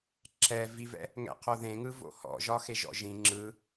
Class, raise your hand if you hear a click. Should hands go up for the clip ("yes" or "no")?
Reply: yes